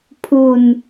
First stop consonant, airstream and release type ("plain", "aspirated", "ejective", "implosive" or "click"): aspirated